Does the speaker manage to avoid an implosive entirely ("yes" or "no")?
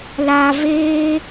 yes